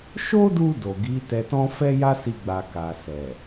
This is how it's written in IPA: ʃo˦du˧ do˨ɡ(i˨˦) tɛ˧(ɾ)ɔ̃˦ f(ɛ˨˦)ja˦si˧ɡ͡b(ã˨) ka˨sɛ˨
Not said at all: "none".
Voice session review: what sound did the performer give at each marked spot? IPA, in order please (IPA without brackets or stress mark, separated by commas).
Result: i˨˦, t, ɛ˦, a˨